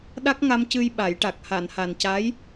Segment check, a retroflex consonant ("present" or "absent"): present